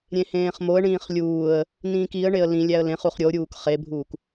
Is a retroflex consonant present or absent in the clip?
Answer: present